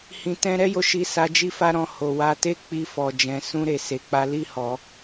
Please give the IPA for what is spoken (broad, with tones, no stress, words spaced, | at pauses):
hĩ˧tɛ̃˦ ɾɛ˦jo˧ ʃi˧sa˧ d͡ʒi˦fa˦ ɾɔ̃˧ ho˨wa˧ te˦k͡pi˧fɔ˨d͡ʒɛ̃˨ sũ˧ɾe˨ se˨k͡pa˧ li˦hɔ˧